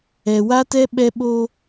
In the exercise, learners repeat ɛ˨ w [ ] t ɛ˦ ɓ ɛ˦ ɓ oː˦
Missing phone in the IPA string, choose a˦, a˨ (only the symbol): a˦